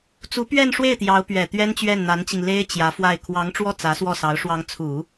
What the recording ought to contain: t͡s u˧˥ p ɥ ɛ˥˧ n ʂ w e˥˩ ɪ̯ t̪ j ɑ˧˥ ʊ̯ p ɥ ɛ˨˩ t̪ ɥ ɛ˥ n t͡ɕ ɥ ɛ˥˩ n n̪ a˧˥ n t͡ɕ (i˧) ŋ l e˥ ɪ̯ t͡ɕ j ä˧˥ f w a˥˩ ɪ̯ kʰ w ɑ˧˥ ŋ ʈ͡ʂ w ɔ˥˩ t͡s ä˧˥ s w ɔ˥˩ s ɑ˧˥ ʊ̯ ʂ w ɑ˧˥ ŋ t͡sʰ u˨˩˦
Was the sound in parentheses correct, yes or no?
yes